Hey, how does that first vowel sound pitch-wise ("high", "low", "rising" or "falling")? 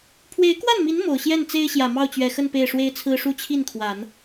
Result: rising